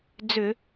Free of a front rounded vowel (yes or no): no